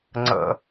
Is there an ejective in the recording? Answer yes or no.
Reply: no